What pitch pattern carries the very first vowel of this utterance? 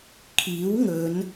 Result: rising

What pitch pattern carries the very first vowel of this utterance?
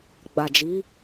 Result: low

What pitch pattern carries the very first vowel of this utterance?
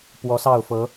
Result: rising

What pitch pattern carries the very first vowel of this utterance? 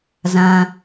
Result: low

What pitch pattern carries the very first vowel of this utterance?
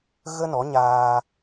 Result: high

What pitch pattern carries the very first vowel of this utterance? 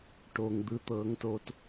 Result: low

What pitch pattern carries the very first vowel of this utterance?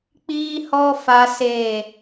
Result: high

